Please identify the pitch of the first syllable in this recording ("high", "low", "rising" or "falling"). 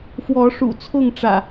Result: rising